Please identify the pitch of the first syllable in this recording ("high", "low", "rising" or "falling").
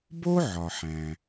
high